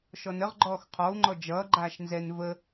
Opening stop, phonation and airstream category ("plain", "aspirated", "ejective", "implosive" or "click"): click